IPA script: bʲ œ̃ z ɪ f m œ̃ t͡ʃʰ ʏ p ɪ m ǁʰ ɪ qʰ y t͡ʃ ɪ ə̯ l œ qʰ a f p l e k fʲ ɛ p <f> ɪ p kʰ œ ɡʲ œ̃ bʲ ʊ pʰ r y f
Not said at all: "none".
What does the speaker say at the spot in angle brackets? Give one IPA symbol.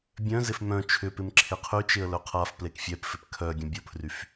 f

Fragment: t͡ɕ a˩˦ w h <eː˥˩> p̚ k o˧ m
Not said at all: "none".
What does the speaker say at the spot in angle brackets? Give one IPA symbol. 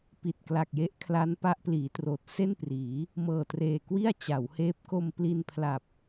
eː˦˥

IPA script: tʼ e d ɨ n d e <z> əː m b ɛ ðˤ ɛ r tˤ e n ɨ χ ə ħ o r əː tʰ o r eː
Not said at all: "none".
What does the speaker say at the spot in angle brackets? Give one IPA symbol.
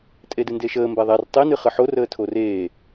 ʃ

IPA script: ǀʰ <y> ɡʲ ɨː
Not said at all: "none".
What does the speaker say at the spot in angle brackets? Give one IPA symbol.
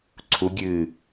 u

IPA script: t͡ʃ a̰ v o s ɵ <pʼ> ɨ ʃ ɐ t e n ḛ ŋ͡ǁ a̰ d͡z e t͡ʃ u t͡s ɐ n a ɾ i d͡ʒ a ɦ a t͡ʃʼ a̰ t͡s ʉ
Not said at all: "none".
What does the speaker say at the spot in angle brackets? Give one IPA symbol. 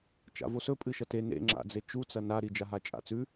pʼ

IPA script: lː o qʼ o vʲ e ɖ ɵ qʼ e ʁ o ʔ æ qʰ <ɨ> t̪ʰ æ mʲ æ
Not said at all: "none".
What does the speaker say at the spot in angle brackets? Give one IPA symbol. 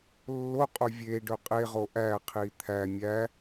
i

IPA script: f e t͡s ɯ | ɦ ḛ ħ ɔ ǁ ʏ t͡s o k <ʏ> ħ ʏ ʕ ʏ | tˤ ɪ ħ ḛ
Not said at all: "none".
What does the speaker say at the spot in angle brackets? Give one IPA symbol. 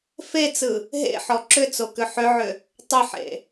ʏ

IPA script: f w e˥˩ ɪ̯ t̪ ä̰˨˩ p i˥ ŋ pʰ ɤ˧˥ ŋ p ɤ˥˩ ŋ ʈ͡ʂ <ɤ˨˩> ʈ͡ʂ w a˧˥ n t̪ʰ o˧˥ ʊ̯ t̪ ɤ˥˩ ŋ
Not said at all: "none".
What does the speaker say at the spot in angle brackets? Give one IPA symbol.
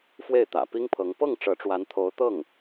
ɤ˧˥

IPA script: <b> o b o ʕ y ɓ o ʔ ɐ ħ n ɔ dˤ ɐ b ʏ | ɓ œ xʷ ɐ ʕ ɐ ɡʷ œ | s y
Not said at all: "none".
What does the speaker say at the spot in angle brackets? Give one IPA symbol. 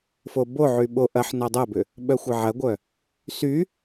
f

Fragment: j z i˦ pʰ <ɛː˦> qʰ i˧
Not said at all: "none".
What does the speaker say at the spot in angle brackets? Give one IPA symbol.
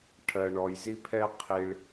ɛ˦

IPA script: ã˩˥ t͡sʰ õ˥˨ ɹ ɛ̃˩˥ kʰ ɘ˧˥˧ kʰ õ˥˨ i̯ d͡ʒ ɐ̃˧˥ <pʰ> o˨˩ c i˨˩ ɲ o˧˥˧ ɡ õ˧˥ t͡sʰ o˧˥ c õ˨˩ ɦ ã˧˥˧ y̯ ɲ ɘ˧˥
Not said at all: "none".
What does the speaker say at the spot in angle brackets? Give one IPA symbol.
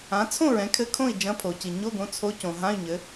pʰ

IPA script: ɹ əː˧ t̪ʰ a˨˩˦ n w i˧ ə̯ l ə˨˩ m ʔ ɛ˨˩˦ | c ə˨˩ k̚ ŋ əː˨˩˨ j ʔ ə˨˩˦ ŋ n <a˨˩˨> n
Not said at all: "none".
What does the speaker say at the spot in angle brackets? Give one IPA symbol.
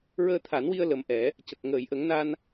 a˧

